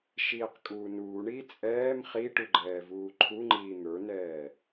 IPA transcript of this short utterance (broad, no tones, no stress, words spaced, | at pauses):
ʃiːqkʼuːnuːɳiː t͡sʼɛːm χiʈu ɡ͡ǃɛːvuːǃʰuŋ͡ǃiː n̪ə˞nɛː